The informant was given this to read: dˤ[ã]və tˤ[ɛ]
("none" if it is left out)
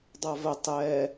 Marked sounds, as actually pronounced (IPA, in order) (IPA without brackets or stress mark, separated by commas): a, ɛ